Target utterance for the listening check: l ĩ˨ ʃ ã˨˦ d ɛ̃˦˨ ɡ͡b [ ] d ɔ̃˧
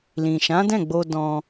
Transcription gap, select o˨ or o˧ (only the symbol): o˧